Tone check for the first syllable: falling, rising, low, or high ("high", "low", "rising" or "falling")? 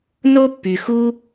high